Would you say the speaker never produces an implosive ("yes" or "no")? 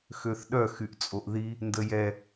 no